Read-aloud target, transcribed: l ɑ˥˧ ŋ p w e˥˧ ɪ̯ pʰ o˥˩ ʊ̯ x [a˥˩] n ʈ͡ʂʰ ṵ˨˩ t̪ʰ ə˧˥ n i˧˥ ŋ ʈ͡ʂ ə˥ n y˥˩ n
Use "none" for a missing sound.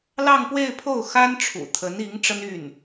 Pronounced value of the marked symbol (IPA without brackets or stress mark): a˥